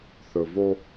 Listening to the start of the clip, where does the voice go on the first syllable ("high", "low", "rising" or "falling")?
low